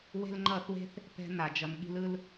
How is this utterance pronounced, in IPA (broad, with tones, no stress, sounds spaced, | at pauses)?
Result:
w e̤˦ l ŋ͡ǃ ʌ˦˨ θ w e̤˦ θ | p ɛ̤˦ n a˨ d͡ʒ ʌ˨ n ɠ i̤˧ l ɯ˧ l